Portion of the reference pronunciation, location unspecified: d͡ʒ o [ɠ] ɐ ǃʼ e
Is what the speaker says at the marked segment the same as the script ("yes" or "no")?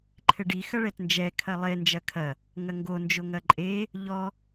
no